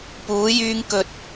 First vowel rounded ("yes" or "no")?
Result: yes